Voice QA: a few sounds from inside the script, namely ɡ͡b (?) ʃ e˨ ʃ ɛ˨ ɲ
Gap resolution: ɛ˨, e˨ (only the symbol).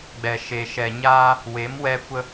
ɛ˨